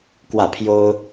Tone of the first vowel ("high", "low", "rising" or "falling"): falling